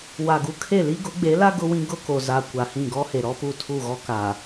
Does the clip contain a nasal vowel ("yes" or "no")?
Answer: yes